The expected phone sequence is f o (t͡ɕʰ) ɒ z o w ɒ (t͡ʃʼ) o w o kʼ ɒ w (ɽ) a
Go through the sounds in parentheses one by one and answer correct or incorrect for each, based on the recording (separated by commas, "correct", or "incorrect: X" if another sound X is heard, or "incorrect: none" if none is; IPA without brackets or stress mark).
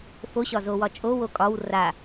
incorrect: ɕ, correct, incorrect: r